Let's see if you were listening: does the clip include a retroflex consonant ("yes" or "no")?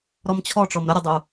yes